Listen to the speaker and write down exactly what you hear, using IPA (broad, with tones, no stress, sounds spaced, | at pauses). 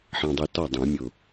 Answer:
ħ ɑ̃˨ dˤ i˨ t ɔ˥˩ dˤ ũ˨˩˦ mʲ ʊ˨